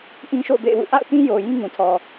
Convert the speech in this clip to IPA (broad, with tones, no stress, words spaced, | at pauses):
ʔĩ˦ʃo̰˦˨ʊ̯bḛ˦˨ɪ̯wṵ˦˨ ʔa̰˦˨ʊ̯tĩ˦ jo˨ jĩ˦ŋũ˨tʰɔ˨